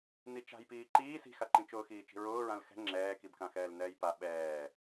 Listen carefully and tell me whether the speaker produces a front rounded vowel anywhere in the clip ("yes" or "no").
no